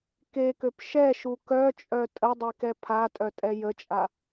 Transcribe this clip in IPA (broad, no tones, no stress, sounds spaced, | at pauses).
k e k ø p ʃ ɛ ʃ u k œ t͡ʃʼ œ tʼ ə dˤ e k ɛ pʰ a tʼ œ tʼ ɛ j ə t͡ʃʼ a